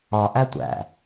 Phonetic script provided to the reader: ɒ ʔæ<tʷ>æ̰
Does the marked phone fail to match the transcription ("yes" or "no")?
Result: no